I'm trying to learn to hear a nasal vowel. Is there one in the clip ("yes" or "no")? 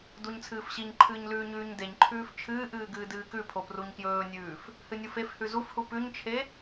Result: no